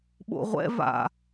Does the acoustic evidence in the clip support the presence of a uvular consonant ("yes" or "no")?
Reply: yes